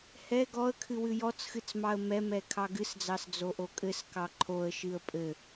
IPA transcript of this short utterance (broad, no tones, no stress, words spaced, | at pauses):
hɛ ɡɔə̯kʰɨ wɨjɔt͡sxɨt͡s mɑə̯mɛmɛ kʰɑɡɨsd͡zɑs d͡zoʔokʼɘskɑ ǃʰoə̯ʃɨə̯ pʼɘ